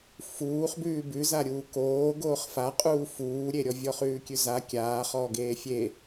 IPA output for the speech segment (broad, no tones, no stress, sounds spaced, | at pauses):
f uː χ b ʉː b ʉ z a ɾʲ uː k oː ɡ oː χ f a qʼ uː f uː ɾʲ e ɾʲ ɔ vʲ ɔ χ ʉː kʲ ʉ z a kʲ aː χ ɔː ɡ eː fʲ e